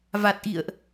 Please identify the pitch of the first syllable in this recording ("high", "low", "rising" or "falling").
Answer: low